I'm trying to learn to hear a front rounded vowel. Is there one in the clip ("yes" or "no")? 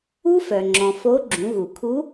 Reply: yes